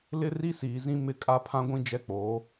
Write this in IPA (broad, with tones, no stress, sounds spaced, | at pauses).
l ɪ˦ r i˦ s iː˨ z ĩ˦ m ɪ˦ kʼ a˦ pʰ ã˦ ɡʷ ĩ˦ d͡ʒ ɛ˦ k͡p oː˨˦